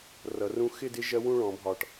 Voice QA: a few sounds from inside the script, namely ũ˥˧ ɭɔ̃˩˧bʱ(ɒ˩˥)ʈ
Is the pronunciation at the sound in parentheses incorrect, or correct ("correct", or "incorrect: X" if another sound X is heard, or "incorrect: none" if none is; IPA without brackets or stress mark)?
incorrect: ɒ˨˩